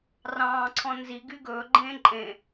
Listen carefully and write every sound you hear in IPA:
rɑ̃ːǀʰɔ̃ nziɡy ɡɵːɡ͡ǃẽː ǃʼẽ

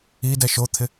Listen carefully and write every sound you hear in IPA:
i dɛʃot̪ʰɪ

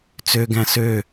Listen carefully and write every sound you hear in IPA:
t͡søɡæ̃ sø

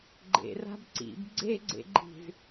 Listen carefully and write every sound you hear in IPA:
ɡ͡ǃḛra̤b ǀḭb ɡ͡ǀeɡ͡ǀḛɡ͡ǃi̤z

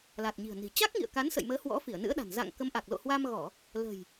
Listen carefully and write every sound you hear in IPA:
la˨˩t̚ɲi̤˨˩ə̯ni̤˨˩ t͡ɕa˦˥k̚ŋḭ˧˨ə̯ ka˨˦nsə̰˧˨jməː˨˦ hwɔ̰˧˥fi˧˩ə̯nɨ̰˧˥ə̯ɗa̤˨˩n za̰˧˨ŋkə˨˦mʔa˨˩k̚ lo̰˧˨hwa˧mɣɔ˧˩˨ | lə̤˨˩j

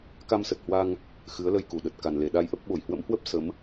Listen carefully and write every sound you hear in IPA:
ka˧msə˨˩t̚hwa˧ŋ | xɨ˨˦ə̯lə˧jku˧˩ɗə˨˩t̚ ka˨˩nle˧˩ ɗa˧jʔə˦˥p̚ ɓo˧˩jhwə̰˧˥mhwə˦˥p̚ sə˨˦m

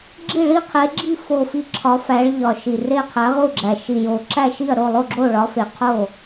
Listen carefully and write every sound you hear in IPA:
ɡ͡ǁi˦˨ɭi˦˨qʰe˨˦ɡ͡ǁi˦˨ fo˨˩fi˨˩ ǁʰɒ˨˦fæ˨˦ɭ ʎɒ˨˩ ʃi˨˩re˦˨ qʰæ˨˦ʁu˦˨ɡ͡ǁæ˨˩ ʃi˨˩jo˨˩ ǁæ˦˨ʃi˦˨ɐ̯ ɾo˦˨lˠo˦˨ ɡ͡ǁo˦˨ɭɒ˨˦fe˨˩qʰo˦˨

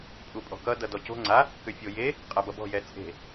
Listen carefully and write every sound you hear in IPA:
pʼupʼɔ̤kʌ dʌdɔco̤ ŋ͡ǀa | kʏfʲoje | qʼabʌbɔ̤ jɛt͡sʼe̤

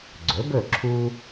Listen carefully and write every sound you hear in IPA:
ɡ͡ǀɵ˩˥bɵ˥˩ ǁʰu˥

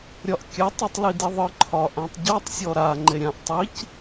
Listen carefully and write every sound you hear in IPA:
ɾʲɒʔkʲatˤ itˤlidiðˤɯ ǃʰɒʔãtˤɟɒtˤ sʲɔɾa ŋ͡ǃeɾʲãʔ tˤic

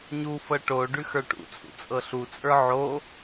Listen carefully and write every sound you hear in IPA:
ɲufɤ ʈo ɖʉxə˞ʈṵt͡sʼṵ t͡sʼɤɬut͡sʼə˞ ʕo

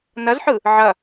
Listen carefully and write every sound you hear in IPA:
nɐzħɯ | ʕɐ

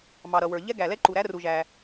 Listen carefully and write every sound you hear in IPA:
mɑ˩ ɾʌ˩wə˞˩ ʎɛ˥ɡæ˩ lɛ˥ǃu˩ɾæ˥ ru˩ʒæ˩

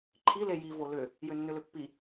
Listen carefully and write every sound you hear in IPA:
ǃʰi leji volʏ | jʏnːʏlʏpːi

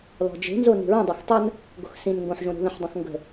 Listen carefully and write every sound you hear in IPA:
lɔ̤d͡ʒe̤nzo ni̤ɹĩdˤex tˤən | ɡo̤xsĩnŋɡõħʒõ ɾo̤ðə̃ħdˤõx ŋɡə̤

